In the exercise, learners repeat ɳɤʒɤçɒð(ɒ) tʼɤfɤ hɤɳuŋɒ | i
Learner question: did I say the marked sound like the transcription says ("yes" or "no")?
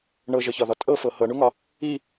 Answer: yes